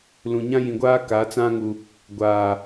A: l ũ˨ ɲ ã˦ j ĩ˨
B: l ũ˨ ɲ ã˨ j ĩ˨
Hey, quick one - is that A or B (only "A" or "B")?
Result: A